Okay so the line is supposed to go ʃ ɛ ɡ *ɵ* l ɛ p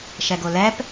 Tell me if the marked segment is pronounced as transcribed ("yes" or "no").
no